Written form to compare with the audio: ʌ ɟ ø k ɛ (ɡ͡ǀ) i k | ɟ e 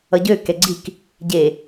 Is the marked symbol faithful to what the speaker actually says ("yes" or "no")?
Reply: yes